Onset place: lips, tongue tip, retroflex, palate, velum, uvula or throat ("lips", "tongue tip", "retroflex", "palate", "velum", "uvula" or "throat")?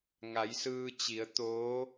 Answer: velum